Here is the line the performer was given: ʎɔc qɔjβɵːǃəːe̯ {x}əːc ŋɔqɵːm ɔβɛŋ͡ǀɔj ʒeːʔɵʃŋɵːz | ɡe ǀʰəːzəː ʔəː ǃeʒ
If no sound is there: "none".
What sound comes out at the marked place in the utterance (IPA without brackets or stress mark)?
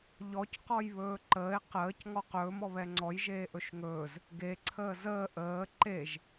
q